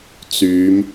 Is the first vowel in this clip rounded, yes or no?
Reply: yes